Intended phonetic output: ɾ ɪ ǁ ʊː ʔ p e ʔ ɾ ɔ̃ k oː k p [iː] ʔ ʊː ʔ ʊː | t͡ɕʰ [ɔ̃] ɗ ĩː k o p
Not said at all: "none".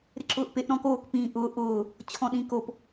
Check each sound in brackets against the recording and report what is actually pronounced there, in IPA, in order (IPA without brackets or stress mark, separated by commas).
ĩː, ɔ̃